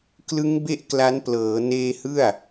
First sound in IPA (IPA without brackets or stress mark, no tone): k